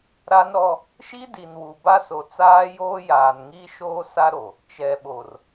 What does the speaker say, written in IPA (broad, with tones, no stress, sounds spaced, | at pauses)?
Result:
ɾ a˦ n ɾ ɔ˦ | ʃ i˦ d i˨ n w u˨ b a˦ s o˨ t͡s aː˦ j oː˦ j aː˨ n ŋ iː˦ ʃ oː˦ s a˦ ɾ o˨ | t͡ʃ ɛ˨ ɓ o˨ r